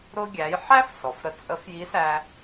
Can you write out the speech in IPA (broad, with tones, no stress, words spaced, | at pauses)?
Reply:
ɾʊ˧ɡʲæ˩˧j ħæ˥f sɔ˩fɾə˧ t͡sʼə˧˥fji˧˥sæ˧